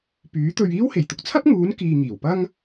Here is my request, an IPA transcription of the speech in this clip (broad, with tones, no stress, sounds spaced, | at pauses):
p yː˨˥ t̪ ɵ˧ ɥ iː˥ w h e˨˩ j t̪ ʊ˨ k̚ t͡sʰ ɐ˥ p̚ ŋ uː˨˥ n k iː˧ ŋ iː˨˩ w p ɐ˥ ŋ